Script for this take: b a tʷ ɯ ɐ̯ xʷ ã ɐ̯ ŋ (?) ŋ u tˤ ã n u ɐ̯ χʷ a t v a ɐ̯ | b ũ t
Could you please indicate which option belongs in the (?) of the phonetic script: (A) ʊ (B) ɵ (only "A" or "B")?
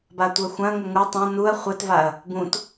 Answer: A